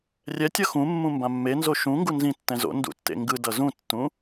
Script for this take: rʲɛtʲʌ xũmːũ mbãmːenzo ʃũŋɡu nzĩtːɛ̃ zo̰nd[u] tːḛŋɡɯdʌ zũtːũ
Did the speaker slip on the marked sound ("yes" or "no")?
yes